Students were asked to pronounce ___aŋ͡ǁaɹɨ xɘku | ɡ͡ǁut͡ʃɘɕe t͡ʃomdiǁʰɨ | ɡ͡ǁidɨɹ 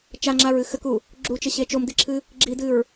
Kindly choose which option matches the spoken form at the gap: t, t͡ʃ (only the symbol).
t͡ʃ